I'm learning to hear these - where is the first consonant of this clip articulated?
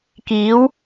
velum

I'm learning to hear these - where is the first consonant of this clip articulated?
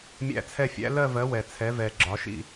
lips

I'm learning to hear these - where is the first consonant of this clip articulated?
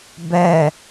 lips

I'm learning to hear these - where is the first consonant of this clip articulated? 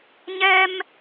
palate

